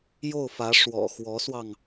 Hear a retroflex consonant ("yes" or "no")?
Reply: yes